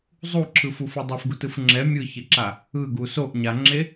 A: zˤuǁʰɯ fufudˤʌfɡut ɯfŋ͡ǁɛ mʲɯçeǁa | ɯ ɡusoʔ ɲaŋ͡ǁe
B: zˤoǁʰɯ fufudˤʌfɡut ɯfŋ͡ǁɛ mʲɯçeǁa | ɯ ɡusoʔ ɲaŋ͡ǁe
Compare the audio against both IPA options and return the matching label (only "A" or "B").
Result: A